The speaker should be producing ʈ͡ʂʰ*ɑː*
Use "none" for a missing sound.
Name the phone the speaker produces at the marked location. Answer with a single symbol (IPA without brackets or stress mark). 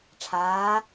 aː